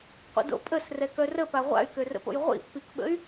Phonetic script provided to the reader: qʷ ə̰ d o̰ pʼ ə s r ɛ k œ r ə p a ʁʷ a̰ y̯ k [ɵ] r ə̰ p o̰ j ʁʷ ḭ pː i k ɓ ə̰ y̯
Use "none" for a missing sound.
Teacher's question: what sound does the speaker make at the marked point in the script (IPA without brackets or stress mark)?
ø